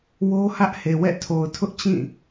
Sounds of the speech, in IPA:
wo˦ hä˦ʔhe˨wɛ̰˦˨tʰo˨ʊ̯ tʰʊ˦ʔt͡ɕĩ˦˨

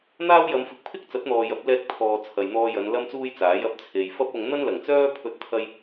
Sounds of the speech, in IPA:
n̪aː˥wjɐ˨˧mfɪ˨˥k̚ pʰɪ˥k̚t͡sɐ˨˥t̚n̪ɔː˨ jɐ˨˥p̚lɛː˧k̚ t̪ʰɔː˨ t͡sʰɐ˨jn̪ɔː˧jɐ˨˧n lɐ˥mt͡suː˥jt͡saː˨˥j ɐ˧p̚ t͡sʰe˨jfɐ˥p̚ʊ˧ŋ n̪ɐ˥nlɐ˨˩ŋt͡sœː˥ pʰɵ˥t̚t̪ʰɐ˥j

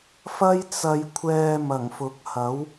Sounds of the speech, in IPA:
fɐ˥j t͡sɐ˧jkʷʰɛː˧ mɐ˨˩ŋfʊ˨˥k̚hɐ˨˥w

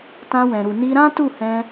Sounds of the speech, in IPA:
tã˧wɛ̃˨ɾu˨ ni˧ɾã˦ tu˦˨hɛ̃˧

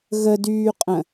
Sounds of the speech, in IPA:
ɣədyːqʼə̃

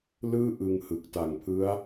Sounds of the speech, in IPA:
lɯː˥˩ʔɯ˧ŋhɯ˨˩k̚ ta˨˩ŋpʰɯ˦˥a̯

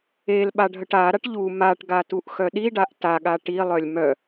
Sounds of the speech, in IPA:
el ɓaɖʱəʈaɾaʈ ʎu maʈɡa tuʔxœɗiɖaʔ taɠa ʈilˠœlʲ mœ

